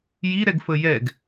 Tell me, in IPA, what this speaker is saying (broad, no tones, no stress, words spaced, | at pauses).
jiɾɛɡfə jɛɡ